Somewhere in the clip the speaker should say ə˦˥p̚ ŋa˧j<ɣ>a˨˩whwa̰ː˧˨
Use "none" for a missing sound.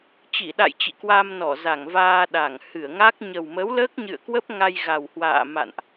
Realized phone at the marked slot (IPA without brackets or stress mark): ɣ